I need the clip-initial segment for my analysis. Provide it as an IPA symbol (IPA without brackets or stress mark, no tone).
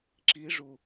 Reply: ǁ